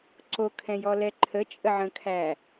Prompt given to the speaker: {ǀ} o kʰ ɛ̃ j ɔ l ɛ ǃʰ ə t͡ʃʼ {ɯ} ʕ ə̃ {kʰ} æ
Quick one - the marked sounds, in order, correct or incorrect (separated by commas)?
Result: correct, incorrect, correct